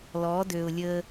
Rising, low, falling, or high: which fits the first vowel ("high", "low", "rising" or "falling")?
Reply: rising